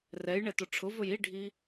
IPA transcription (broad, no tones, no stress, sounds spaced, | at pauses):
r ɛ j ɳ ɛ t ʊ ʈ͡ʂʰ ʊ v ɵ j i ɖʱ i